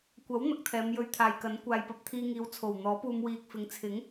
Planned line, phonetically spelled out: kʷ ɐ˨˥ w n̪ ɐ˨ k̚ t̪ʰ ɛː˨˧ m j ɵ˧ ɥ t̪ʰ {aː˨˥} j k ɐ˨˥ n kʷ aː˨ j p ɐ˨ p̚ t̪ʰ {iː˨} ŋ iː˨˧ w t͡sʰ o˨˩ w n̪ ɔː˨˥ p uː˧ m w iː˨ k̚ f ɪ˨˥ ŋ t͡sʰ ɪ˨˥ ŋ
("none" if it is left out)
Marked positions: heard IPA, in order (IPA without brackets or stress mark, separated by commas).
aː˨, iː˧